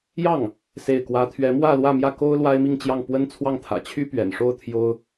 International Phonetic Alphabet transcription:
jɑ˥˩ŋ | se˥˩ɪ̯kwä˥ t̪ʰɥɛ˧˥mwä˥˧ lwä˥˧mjä˥˩ ko˥ʊ̯ lwa˥ɪ̯mi˥˧ŋt͡ɕjɑ˥˩ŋ pwə˥nt͡sʰwɑ˥˩ŋt̪ʰä̰˨˩ t͡ɕʰy˥pɥɛ̰˨˩nʂo˥˩ʊ̯ t̪ʰjo˥ʊ̯

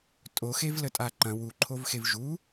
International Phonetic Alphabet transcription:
tʼoxevlətʼa ǃɐ̃ wuǃʰovxev ʒu

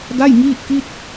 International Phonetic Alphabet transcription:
da˥˩jŋiː˥˩t̚ki˥˩t̚

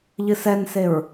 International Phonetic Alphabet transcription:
ʎɨsɛnseɹ

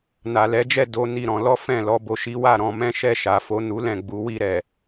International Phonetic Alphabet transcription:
na˨lɛ˨˦d͡ʒɛ˦˨ do˨˦ ni˦˨ɾɔ̃˨˦ lɔ˦fɛ̃˦˨ lɔ˨˦bo˧ʃi˦ wa˦˨ ɾɔ̃˧mɛ̃˦ ʃɛ˦˨ʃa˨fo˨˦ nu˦ lɛ̃˦˨ ɡ͡bu˨˦wi˧ɾɛ˨

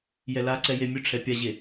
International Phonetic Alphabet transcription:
jɛlaǀɛ jemʲɵʈ͡ʂʰɛ pʲaʑe

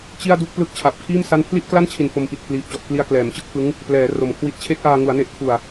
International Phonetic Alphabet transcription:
t͡ɕi˥˩a̯du˥˩k̚ plɯ˦˥k̚t͡ɕʰa˨˩p̚kʰiː˥˩m sa˥˩n pʰli˥˩ʔkla˥˩nt͡ɕʰi˨˩n fo˧mpi˨˩t̚pʰliː˨˩p̚t͡ɕɔ˨˩ʔ kli˧a̯klɛː˩˦mt͡ɕɯ˦˥k̚fɯ˦˥ŋ | plɛː˩˦ ro˨˩mkʰwi˦˥t̚ t͡ɕʰe˦˥k̚ʔaː˧ŋu˩˦a̯ ne˦˥ʔ kʰu˨˩a̯

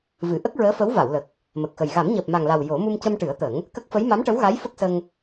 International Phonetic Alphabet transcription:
vɨ˨˩˨ʔə˦˥k̚ɹəː˧˥fə˧˥w va˨˩˨wlə˨˩k̚ | mə˨˩k̚xə˨˩j ɣa˨˩˦mɲəː˨˩p̚ma˨˩ŋla˨˩w jo˨˩˦ mu˧mcə˧mʈɨ˨˩˦ə̯t̪ə˨˩˦ŋ | kə˦˥k̚fə˧˥j ma˧˥mʈə˧˥wɣa˧˥j fə˦˥k̚sə˧ŋ

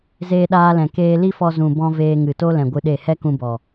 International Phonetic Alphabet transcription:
zeː˧ɗaː˧lɛ̃˨ keː˧li˦fɔ˧ zũ˨bɔ̃˧ veː˧ŋɨ˨to˦lɛ̃˨ ɡʷɨ˧ɗe˦˨ hɛ˦kũ˧bɔ˨

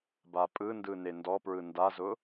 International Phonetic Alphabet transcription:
bapʼɯndɯ nendɔpɹɯ ndazʊ

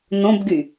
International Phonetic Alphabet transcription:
nõbɡy

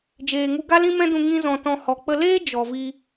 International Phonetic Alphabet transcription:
d͡ʒeː˨ŋu˧ ɡa˦lĩ˦mɛ̃˦dũ˧ ŋĩ˦zɔ̃˧ tɔ̃˧ hɔ˨k͡pə˧leː˦ d͡ʒɔ˨vi˧

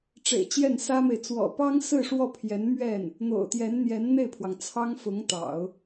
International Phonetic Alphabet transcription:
ʈ͡ʂḛ˨˩ɪ̯t͡ɕjɛ˥˩nsä˥me˨ɪ̯ t͡swɔ̰˨˩pɑ˥ŋsɹ̩˥˧ ʂwɔ˥˩pʰjɛ˧˥nmɥɛ˥˩n | n̪o̰˨˩ʊ̯t̪jɛ˧˥n n̪jɛ˧˥nn̪e˥˩ɪ̯pʰwɑ˩ŋ t͡sʰɑ˥ŋfʊ˧˥ŋt̪ɑ̰˨˩˦ʊ̯

